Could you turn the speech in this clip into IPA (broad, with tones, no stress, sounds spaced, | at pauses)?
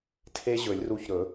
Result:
tʰ e˦ ʑ ɵ˨˩˦ lʲ r u˧˩ ç ɾ ɵ˨˩˦